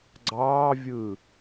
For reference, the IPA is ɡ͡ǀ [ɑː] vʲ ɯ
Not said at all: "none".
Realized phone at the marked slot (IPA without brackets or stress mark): ɑː